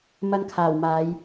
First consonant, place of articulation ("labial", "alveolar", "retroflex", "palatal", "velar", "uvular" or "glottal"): labial